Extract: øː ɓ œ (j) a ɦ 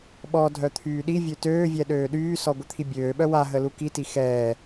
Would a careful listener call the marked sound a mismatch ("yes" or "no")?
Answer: yes